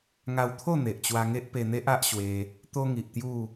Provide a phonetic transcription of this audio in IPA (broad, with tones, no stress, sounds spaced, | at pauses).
ŋ a˧ w t̪ʰ o˥˧ n̪ e˨ ʔ t͡ɕ w a˧ ŋ e˦ ʔ p e˧ n̪ e˦ ʔ a˦ ʔ ɕ w e˧ | t̪ o˦ ŋ i˨ ʔ t̪ j u˥˧